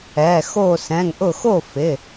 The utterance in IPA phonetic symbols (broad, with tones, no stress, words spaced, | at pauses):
ɛ˩˧˩ xo˧˩sɛ̃˩˧˩ŋʔʊ˧˩ xo˥˩fɪ˩˧˩